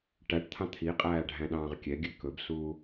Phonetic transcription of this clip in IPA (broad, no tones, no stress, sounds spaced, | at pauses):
ʈ æ ʈ t̪ʰ ɑ̃ t̪ʰ i qʼ æː ɖʱ æ̃ ɗ ɑ̃ː ʁ kʲ ɛ ɡʲ ʉ k ɵ b s uː